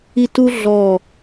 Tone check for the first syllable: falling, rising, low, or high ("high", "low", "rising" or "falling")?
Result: falling